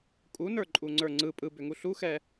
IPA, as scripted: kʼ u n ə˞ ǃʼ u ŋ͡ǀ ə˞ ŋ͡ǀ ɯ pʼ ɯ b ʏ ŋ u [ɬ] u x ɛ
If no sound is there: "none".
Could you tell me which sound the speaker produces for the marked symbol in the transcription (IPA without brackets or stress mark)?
ɬ